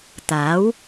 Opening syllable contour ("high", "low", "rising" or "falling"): rising